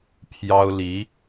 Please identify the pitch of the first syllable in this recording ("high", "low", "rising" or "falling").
high